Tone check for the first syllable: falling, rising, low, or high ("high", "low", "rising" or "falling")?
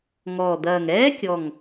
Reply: low